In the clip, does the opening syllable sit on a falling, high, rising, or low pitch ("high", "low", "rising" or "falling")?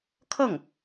falling